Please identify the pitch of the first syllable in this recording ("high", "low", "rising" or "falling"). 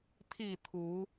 falling